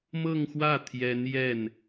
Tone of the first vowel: falling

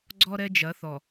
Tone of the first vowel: high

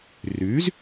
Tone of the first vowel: rising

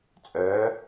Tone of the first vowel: rising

